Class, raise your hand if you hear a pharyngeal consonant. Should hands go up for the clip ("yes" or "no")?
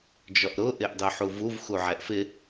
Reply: yes